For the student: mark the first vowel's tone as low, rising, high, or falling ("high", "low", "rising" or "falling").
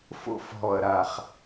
high